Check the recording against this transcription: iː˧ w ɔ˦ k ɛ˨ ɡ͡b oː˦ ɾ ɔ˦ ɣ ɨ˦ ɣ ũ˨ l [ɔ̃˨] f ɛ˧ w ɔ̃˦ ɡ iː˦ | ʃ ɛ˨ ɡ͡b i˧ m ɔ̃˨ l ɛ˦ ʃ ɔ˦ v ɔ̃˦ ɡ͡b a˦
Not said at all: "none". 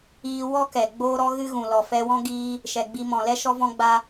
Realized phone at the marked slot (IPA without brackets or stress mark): ɔ˨